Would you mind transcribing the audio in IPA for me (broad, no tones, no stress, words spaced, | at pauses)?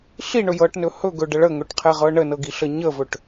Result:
ɬiɳɵ jɤʈnɵ hɵɡɵɖə ɭəŋɵʈqʰɛʁɤ ɳənɤɡiɬə ɲəvɵʈ